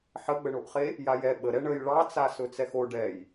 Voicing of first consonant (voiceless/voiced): voiceless